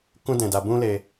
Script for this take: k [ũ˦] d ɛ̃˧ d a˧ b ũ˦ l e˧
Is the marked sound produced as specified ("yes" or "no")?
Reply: yes